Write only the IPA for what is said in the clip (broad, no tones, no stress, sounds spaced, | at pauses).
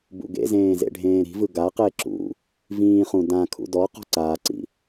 b ṵ ɡ ḛ z ẽː z ḛ ɖʱ ẽː ɾ i̤ v ɯ ɡ a q e ǁ ṵ | v ĩː χ ũ d ã kʰ ṵ d ɔ q ɔ̤ ǀ aː ǀ ḭ